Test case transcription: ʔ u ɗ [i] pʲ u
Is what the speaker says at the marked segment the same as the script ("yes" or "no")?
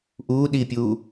yes